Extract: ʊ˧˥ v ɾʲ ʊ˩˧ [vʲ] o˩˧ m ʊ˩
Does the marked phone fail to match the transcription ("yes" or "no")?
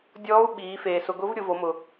yes